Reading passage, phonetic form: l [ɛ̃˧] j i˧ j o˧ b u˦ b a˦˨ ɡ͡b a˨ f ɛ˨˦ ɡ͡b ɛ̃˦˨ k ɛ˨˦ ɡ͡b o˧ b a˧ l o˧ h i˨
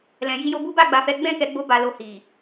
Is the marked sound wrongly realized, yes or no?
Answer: yes